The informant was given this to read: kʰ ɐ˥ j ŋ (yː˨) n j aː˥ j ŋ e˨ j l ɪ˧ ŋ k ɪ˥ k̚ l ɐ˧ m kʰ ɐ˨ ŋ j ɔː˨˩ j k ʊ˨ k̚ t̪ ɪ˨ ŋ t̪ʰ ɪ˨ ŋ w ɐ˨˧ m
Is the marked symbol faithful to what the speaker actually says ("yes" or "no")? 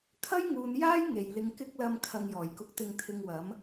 no